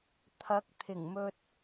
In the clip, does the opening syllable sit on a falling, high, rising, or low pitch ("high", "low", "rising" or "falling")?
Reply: rising